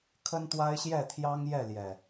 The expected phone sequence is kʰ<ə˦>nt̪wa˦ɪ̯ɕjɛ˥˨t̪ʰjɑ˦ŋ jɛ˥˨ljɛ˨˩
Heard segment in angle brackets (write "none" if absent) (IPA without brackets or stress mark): ə˦